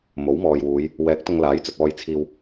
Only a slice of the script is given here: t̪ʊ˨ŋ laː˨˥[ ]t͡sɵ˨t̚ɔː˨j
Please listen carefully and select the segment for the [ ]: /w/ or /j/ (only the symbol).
j